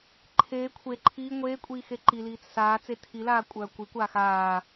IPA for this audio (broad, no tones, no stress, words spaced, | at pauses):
ǃʰeː kʷʰe ǃʰiː ŋʷeːkʷʼiː xeǃiliːt͡s saː t͡setʰilaː kʷʼœːkʷikʷaː xaː